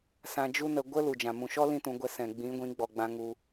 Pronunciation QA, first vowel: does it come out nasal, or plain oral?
nasal